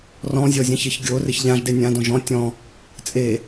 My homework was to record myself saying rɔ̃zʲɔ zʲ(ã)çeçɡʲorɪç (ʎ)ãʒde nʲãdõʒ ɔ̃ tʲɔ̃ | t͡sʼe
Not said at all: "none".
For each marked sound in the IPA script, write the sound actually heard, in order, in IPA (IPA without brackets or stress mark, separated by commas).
ã, ʎ